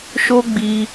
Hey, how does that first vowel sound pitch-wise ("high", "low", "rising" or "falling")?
high